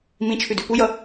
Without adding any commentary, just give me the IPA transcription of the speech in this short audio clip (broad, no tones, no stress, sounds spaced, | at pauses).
m ĩ t͡ʃʰ ʉ d ʉ p u j ʌ